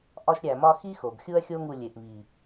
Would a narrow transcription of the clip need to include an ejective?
no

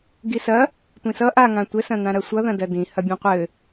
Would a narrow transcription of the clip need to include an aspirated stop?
no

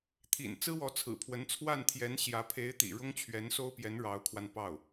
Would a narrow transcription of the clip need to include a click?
no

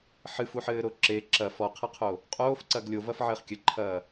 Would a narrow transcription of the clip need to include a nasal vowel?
no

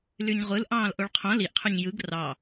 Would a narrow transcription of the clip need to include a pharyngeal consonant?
no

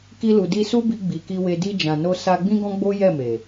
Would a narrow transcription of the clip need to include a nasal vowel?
yes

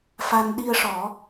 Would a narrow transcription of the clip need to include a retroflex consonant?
yes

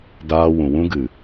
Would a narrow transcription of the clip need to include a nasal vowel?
yes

